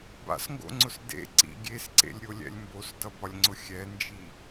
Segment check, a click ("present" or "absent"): present